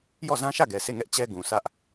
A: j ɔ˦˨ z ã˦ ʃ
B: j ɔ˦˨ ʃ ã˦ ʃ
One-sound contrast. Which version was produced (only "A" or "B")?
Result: A